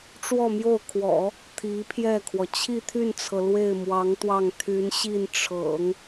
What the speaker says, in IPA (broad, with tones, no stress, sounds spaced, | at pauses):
ʈ͡ʂ w ɔ˥˧ m j o˥˩ ʊ̯ kʰ w ɔ̰˨˩˦ | t̪ʰ i˧˥ pʰ j ɛ˥˩ kʰ w ɔ˩ t͡ɕʰ i˥˧ t̪ʰ y˥˩ n t͡sʰ ɤ˩ l w e˥˩ ɪ̯ m w ɑ˧˥ ŋ t̪ w ɑ˥˩ ŋ t̪ʰ y˧˥ n ɕ i˥˩ n ʈ͡ʂʰ ɤ̰˨˩˦ ŋ